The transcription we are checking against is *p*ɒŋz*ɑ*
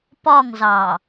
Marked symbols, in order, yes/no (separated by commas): yes, yes